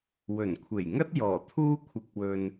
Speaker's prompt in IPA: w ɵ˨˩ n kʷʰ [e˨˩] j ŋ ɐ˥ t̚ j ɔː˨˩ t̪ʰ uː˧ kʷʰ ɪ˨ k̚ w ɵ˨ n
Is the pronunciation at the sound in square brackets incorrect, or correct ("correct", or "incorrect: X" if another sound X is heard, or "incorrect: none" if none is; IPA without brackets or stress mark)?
correct